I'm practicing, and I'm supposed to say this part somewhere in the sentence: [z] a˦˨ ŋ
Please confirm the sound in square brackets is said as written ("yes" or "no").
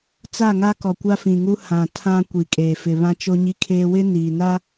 no